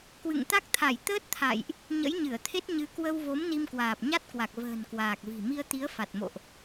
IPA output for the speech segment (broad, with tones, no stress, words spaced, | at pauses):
kwɨ̰˧˨ŋt̪a˦˥k̚t̪ʰa˧˩j t̪əː˦˥t̚t̪ʰa̰˧˨jʔ | ɲə̰˧˥jɲɨ˧˩ə̯t̪ʰe˦˥t̚ɲɨ˨˦ kwə˧wvo˨˦m ni˧mkwaː˨˩p̚ɲa˦˥t̚kwa˨˩k̚ və̤ː˨˩nkwaː˨˩k̚vi̤˨˩ mi˧ə̯t̪i˨˦ə̯ fa˨˩t̚mo̰˧˨ʔ